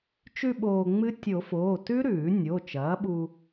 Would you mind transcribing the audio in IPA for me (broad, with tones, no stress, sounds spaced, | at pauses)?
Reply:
t͡ʃ ʉ˧ ɓ oː˧ ŋ͡m ɨ˦˥ tʲ o˨˩˦ f oː˩˧˩ t ʉ˦˥ ɾ ʉː˨˩˦ nʲ o˩˧˩ t͡ʃ ɐː˩˥ ɓ u˧